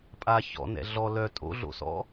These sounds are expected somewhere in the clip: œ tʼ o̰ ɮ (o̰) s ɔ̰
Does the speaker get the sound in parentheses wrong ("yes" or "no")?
no